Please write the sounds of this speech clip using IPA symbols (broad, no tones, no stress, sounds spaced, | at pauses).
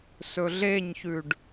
s ɵ ɮ e ɲ ç ʉ ɖ